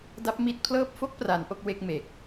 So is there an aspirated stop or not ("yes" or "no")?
yes